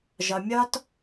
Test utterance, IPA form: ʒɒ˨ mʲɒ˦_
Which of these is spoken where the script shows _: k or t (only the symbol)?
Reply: t